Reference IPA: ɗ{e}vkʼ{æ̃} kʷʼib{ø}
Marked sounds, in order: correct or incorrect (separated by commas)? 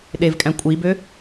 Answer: correct, correct, correct